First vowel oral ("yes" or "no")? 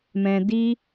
no